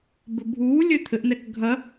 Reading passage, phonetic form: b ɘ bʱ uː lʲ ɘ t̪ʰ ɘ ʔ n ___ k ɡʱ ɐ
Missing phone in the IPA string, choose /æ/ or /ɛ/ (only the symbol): ɛ